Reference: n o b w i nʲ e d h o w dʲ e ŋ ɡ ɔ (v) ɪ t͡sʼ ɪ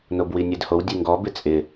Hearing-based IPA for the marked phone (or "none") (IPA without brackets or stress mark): b